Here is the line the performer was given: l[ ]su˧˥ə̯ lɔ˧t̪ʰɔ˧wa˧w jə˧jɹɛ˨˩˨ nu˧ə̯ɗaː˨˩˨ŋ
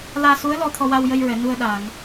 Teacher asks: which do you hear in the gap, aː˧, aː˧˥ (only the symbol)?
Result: aː˧